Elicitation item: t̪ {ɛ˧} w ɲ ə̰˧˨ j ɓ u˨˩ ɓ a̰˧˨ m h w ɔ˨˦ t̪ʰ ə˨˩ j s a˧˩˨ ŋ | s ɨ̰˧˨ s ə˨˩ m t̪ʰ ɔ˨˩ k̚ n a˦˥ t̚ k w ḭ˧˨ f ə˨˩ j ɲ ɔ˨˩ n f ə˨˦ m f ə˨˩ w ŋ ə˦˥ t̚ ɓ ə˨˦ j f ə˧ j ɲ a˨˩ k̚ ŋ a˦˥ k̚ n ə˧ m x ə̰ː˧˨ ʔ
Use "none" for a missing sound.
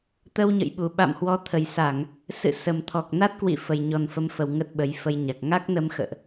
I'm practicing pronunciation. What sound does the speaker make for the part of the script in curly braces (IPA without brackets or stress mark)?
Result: ə˧